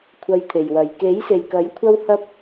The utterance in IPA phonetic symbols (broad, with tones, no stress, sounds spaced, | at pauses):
kʷʰ ɐ˧ j t̪ʰ e˨ j w ɐ˨ j k e˨˥ j s e˨ j k ɐ˨˥ j kʷʰ ɐ˥ w h ɐ˥ p̚